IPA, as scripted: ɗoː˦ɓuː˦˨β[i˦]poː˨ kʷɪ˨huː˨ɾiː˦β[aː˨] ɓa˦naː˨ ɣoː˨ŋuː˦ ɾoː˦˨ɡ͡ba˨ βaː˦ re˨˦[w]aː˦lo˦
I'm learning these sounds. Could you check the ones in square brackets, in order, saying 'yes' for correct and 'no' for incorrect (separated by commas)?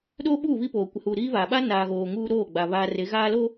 yes, yes, no